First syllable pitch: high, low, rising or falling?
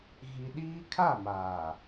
high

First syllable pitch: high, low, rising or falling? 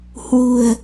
low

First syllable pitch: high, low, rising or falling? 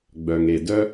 low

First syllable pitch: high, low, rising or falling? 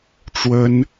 high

